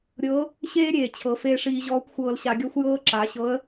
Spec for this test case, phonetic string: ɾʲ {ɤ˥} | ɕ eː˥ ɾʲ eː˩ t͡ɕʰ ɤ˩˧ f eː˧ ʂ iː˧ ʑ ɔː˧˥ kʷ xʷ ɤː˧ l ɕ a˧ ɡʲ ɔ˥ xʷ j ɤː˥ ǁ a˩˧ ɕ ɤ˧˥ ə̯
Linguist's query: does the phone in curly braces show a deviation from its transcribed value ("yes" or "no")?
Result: yes